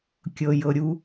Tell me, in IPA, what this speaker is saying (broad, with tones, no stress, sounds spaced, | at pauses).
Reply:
kʲ ɤ˧ j ɤ˧ ɾʲ u˦